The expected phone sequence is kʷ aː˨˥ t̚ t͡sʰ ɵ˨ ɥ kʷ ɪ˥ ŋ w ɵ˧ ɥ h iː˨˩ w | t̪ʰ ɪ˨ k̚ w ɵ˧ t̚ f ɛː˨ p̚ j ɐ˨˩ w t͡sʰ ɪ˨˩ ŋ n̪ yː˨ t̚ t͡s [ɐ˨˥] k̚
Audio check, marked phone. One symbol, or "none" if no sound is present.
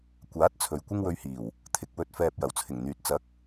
ɐ˨˥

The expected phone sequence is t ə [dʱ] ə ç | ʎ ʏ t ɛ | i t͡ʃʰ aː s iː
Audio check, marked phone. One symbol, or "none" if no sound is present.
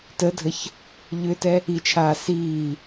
dʱ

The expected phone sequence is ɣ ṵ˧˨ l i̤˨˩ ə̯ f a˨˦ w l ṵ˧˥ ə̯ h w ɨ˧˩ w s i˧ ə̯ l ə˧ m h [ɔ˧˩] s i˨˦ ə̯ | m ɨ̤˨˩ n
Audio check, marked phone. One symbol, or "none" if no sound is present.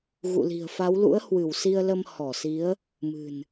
ɔ˧˩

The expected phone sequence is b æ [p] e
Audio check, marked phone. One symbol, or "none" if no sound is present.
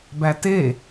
t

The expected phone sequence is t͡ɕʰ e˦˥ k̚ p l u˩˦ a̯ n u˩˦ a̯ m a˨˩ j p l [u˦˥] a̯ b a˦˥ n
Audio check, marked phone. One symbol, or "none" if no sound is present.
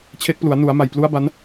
u˦˥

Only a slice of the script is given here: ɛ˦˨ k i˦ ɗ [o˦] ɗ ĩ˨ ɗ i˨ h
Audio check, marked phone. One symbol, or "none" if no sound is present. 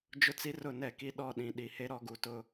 ɔ˦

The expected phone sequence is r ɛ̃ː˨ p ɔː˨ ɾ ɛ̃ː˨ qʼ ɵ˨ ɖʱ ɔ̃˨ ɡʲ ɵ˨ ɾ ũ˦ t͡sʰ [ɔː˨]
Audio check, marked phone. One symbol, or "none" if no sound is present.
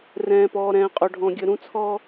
ɔː˦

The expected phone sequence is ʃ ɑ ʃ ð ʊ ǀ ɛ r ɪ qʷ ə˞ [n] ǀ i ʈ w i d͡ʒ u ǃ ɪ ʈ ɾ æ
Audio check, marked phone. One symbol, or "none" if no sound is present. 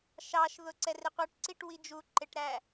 ʈ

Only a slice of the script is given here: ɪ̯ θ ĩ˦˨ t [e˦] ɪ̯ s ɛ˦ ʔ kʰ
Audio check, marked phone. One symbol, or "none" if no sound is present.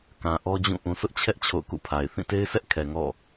e˦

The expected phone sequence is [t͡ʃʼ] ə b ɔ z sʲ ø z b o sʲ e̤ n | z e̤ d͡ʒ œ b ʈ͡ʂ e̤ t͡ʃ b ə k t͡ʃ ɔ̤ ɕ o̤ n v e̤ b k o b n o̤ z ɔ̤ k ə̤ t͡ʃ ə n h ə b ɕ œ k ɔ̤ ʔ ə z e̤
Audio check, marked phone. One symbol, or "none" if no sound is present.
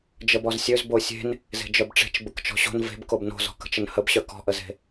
d͡ʒ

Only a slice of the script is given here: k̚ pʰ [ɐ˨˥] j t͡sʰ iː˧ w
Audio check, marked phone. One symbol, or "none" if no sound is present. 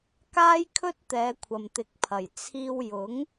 ɐ˨˩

